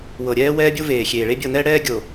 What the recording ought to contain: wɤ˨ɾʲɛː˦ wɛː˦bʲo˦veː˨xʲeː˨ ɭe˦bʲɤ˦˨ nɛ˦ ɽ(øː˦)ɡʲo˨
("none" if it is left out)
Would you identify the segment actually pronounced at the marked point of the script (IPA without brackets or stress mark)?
ɛː˦